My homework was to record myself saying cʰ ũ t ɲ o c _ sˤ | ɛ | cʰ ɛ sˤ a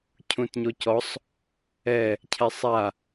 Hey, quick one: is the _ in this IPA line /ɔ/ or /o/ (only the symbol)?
ɔ